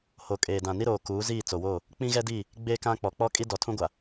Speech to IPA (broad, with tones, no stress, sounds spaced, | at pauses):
h o˨ kʼ eː˨ d ã˨ n i˦ ɾ oː˨ k uː˨˦ z iː˦˨ t͡s o˨ w oː˦˨ | k͡p ĩ˦ ɣ ɛ˦ d iː˦˨ | ɡ͡b eː˦ k ã˦ k͡p ɔ˨ k͡p ɔ˦ kʼ i˦ d ɔ˨ tʰ ũ˦ ɡʷ a˨